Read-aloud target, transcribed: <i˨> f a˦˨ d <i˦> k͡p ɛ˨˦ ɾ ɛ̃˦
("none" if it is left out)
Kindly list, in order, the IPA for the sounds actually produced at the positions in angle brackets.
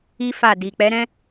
i˦, i˨

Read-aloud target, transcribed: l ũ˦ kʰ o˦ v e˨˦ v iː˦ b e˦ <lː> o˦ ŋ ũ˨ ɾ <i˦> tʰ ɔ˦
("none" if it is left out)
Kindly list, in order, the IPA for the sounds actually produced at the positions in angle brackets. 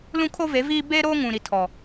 ɾ, i˦

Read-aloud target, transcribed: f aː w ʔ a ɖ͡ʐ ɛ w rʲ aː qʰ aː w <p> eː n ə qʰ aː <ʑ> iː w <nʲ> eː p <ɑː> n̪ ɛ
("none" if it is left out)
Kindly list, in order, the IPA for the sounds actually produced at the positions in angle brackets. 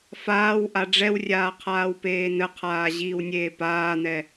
p, ʑ, nʲ, aː

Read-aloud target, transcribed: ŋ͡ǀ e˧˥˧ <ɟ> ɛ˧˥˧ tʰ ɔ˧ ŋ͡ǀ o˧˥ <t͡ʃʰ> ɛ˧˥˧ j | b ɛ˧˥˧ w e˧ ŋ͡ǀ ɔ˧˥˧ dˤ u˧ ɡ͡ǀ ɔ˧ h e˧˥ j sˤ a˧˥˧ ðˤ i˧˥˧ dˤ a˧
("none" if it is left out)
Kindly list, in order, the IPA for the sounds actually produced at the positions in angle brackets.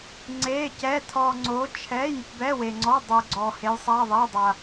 c, t͡ʃʰ

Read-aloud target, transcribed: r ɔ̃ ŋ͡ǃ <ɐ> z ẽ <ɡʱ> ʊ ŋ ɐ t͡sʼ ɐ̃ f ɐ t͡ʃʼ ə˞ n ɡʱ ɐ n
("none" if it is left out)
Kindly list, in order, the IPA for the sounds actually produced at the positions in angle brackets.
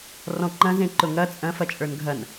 ɐ̃, ǃ

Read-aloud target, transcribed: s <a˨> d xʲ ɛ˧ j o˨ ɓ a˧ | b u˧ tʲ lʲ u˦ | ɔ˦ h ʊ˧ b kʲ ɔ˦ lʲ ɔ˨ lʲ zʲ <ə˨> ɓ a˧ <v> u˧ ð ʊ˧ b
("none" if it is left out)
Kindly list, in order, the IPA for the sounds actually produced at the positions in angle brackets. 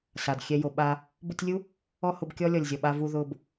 a˨, ɔ˨, v

